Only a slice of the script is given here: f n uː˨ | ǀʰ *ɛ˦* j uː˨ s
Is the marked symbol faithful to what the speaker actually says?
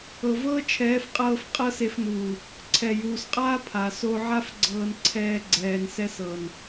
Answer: no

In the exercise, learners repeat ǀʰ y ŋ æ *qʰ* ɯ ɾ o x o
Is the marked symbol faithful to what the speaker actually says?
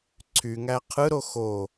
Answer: yes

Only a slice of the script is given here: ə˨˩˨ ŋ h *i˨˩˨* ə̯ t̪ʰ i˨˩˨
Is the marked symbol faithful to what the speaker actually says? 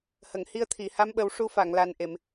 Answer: no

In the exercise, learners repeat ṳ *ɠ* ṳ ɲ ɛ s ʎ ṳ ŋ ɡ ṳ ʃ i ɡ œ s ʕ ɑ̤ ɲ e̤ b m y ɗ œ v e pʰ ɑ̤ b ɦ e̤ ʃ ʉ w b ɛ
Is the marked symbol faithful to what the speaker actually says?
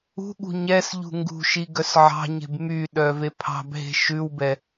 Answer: yes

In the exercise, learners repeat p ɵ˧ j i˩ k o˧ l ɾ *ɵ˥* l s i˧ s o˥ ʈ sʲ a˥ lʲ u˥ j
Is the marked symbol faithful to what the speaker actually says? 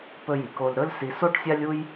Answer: yes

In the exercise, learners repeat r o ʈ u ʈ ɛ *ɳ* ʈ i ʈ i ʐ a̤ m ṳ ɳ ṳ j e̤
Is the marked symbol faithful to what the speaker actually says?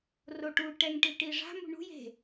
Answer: no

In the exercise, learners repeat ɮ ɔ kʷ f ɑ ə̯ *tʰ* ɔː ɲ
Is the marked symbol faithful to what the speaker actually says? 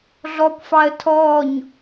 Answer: yes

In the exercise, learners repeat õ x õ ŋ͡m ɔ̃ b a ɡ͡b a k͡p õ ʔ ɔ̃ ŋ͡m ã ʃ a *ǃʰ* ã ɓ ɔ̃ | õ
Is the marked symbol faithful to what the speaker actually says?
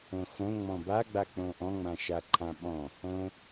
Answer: yes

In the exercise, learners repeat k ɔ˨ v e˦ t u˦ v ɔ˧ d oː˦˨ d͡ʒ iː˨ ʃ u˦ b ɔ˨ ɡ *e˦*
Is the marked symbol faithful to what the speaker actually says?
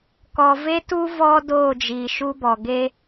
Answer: yes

